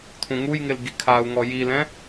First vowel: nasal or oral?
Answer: nasal